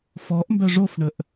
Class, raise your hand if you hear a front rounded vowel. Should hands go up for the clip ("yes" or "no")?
yes